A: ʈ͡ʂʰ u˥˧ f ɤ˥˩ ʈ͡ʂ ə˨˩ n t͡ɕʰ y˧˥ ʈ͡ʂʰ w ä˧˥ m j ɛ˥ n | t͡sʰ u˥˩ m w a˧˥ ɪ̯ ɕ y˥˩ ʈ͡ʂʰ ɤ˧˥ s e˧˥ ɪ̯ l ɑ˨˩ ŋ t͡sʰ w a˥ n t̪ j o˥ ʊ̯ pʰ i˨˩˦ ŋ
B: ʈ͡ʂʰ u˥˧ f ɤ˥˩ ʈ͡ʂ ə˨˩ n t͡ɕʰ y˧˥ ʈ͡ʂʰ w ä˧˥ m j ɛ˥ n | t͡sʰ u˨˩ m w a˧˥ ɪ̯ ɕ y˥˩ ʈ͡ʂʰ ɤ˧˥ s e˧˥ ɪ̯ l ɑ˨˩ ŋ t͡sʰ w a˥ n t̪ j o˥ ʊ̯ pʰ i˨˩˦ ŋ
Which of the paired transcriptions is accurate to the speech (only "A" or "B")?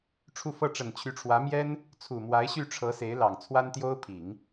B